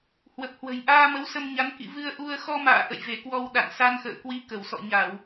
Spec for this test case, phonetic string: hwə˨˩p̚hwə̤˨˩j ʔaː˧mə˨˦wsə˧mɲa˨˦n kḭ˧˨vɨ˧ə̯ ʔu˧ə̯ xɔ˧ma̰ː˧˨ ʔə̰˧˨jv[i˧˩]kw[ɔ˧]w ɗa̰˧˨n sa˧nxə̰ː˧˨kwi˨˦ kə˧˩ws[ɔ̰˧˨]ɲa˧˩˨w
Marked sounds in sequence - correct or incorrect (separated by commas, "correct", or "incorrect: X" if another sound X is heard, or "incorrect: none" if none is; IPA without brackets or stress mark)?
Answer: incorrect: e˧˩, correct, correct